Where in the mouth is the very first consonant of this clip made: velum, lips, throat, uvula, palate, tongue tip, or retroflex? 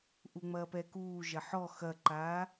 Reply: throat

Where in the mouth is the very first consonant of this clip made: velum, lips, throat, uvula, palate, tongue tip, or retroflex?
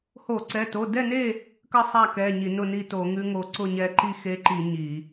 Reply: throat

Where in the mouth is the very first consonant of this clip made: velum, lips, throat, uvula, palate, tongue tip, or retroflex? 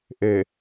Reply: throat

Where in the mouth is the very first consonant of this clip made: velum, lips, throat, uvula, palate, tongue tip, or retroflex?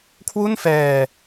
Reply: velum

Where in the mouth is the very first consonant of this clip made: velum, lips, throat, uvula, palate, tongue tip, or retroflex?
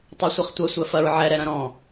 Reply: tongue tip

